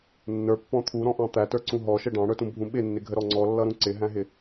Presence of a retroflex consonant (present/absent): present